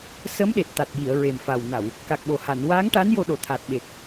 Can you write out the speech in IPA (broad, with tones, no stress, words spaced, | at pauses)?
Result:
sə˧˥mɗe˨˩t̚t̪a˨˩t̚ji˨˩˨ə̯ ɹe˨˩mfa˨˩wna˨˩˨w | ka˨˩k̚ɓo˨˩ha˨˩˨n waː˧˥ŋʈa˧˥n jo˧ɗo˨˩t̪ʰa˨˩t̚ ɓe˨˩k̚